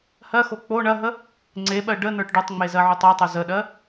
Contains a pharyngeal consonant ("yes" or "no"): yes